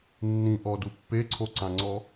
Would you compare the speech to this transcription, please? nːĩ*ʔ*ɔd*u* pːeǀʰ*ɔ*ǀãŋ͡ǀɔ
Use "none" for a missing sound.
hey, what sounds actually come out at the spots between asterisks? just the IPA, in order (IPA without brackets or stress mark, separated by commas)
ʔ, u, o